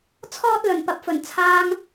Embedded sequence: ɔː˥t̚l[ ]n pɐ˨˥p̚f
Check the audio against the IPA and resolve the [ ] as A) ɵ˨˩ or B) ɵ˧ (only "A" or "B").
A